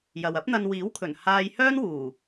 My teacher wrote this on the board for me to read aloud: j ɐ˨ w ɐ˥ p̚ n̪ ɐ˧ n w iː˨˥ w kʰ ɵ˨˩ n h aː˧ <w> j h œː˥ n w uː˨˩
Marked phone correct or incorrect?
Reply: incorrect